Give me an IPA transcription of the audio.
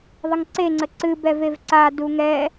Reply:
ðˤəŋǀeŋ͡ǀə ǀɨbɛ vevǀa duŋɛ

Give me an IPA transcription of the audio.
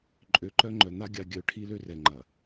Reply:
ǃʼø˨ǃœ˦ ŋ͡ǃœ˨n̪a˦ ɡʲa˦ ɡʲœ˨ ʈʰi˦lø˦rɛ˨ ŋ͡ǃɐ˨

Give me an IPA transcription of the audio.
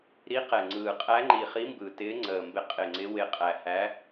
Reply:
ɾi˨˦qɛ˨˩ŋ͡ǀɯː˨˩ qʼæ˨˦ŋ͡ǃi˨˩ χi˨˦mbɯ˨˩tɪː˨˦ ŋ͡ǀəː˨˩mbɪ˨˦ qʼɪ˨˩ŋ͡ǀɪ˨˦ wɪ˨˩ qʼæ˨˩hæ˨˦

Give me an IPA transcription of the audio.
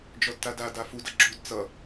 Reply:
d͡ʒɔdtada dafud ʌɡ͡ǁud t͡sʌ

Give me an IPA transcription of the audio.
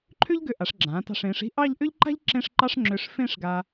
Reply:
ǃʰʏ˥ʎɡʏ˧ ʔa˩˧ʂɡ͡ǁãː˩˧tɑ̤˧˩ʂ ẽ˩˧ʂi̤˥˧ ʔɑ˥˧ʎʔʏ˥ʎǃa̤˥ʎ ǁẽ˥˧ʂǃɑ˥ʂŋ͡ǁʏː˧ʂ fẽ˥˧ʂɡa˧

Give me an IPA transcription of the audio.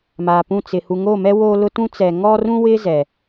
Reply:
maː˨pũ˦˨ t͡sɪ˨ hu˨ŋo˦˨mɛ˦ wo˦lʊ˦tũ˦ t͡sɛ˨ŋɔ˦rũ˦wɪ˦ zɛ˨

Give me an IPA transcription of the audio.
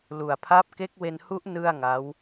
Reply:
lu˨˩a̯pʰa˦˥p̚ke˦˥k̚ we˧nhu˦˥ʔ nɯ˥˩a̯ŋa˦˥w

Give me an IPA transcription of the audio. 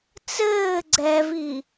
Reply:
t͡sɘː ɡ͡ǀɛvi

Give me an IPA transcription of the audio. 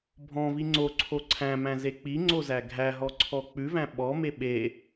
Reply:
bʱɔ̃vi ŋ͡ǀoǀʰo ǀʰæ̃mæ̃ze k͡piŋ͡ǀozæ ɡʱæɦɔǀʰɔ k͡pʉvæ̃ ɓɔme ɓe

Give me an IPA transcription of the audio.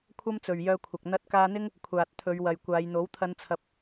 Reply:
kʷʰɐ˥mt͡sɵ˨ɥjœː˧kʷʰɐ˨k̚ n̪ɐ˧t̚kaː˧n̪ɪ˥ŋ | kʷʰaː˨t̚t̪ʰɵ˨˧ɥ wɐ˨jkʷaː˨˧jn̪o˨˥w t̪ʰɐ˨˧nt͡sʰɐ˨p̚

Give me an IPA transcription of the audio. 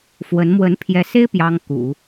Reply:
fwə˧˥n mwə˧˥npʰjɛ˧˥se˥ɪ̯ pjɑ˥ŋ kṵ˨˩˦

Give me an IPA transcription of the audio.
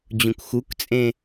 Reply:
d͡ʑũkxukt͡sʼẽ

